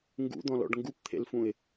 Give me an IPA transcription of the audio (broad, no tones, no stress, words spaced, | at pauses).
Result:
ŋɡṵd̪ɔ̃lɔ̰ɖ ŋɡupt̪ʰḛlfũɪ̯